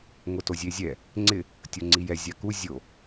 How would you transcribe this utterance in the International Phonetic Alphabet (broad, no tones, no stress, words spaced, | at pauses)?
ŋʊtozʲezʲɛ | ŋ͡ǀɪ | tʲoŋ͡ǀijɛ zʲaku zʲo